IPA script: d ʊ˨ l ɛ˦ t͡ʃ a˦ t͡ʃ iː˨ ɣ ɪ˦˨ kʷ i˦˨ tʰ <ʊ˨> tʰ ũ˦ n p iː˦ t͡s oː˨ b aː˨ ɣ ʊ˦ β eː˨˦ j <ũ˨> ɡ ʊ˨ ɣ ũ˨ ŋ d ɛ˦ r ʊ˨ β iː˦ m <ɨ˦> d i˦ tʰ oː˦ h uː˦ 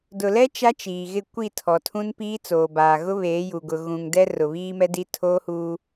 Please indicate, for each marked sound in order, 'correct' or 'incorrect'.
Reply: incorrect: ɔ˨, incorrect: u˨, incorrect: ɛ˦

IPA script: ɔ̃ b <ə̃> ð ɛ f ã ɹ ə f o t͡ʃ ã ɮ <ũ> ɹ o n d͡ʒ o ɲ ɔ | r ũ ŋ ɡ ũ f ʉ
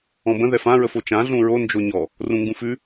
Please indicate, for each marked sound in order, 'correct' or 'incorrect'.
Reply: correct, correct

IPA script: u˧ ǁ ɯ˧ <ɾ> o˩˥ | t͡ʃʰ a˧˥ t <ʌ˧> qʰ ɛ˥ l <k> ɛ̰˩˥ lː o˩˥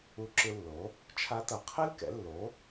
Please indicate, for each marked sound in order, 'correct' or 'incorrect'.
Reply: incorrect: lː, incorrect: ʌ˩˧, correct

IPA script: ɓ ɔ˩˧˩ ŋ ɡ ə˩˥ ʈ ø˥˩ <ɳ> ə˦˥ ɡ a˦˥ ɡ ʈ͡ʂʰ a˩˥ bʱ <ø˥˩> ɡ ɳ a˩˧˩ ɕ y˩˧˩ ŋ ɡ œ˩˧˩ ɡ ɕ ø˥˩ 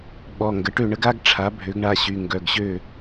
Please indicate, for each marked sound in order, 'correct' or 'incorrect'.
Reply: correct, incorrect: ø˩˥

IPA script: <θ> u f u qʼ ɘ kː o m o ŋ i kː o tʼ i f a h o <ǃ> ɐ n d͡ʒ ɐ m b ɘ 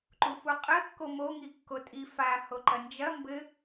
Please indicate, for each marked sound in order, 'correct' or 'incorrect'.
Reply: incorrect: ǃ, correct

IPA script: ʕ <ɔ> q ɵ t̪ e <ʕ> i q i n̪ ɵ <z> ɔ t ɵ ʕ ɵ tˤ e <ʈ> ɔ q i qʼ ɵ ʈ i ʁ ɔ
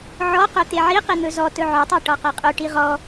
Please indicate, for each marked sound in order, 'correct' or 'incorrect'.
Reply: correct, correct, correct, correct

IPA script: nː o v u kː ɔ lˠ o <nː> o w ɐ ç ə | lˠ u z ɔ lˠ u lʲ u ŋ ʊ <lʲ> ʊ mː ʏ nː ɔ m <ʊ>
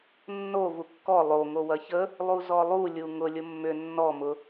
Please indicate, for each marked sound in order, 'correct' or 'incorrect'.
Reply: incorrect: ŋ, correct, correct

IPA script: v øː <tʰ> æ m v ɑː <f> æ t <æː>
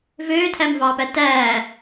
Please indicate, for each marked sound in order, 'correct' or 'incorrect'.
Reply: correct, incorrect: p, correct

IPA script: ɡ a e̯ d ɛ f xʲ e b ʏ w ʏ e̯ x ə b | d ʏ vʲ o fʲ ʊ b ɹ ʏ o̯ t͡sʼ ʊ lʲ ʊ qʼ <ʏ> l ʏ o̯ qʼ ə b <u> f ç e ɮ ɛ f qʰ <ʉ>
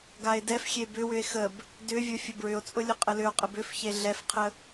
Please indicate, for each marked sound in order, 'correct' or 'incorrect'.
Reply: incorrect: ə, incorrect: ʏ, incorrect: ə

